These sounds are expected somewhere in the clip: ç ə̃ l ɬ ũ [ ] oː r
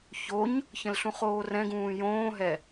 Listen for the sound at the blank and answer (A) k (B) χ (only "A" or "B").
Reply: B